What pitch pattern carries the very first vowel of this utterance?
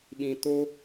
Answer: low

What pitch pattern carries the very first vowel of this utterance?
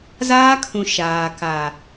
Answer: high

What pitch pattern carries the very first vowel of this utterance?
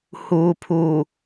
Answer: low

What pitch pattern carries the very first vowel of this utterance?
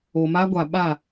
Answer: low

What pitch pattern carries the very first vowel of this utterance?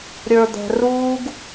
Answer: low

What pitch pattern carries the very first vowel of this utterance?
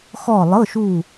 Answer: falling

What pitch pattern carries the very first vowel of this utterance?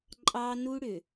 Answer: high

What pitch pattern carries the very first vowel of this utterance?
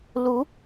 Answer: rising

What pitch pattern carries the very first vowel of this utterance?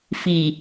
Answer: low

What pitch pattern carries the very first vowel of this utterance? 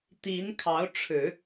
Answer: rising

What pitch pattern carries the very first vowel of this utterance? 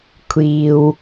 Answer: low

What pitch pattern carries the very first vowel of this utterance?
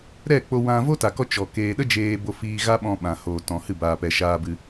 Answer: falling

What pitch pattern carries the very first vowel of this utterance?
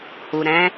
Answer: low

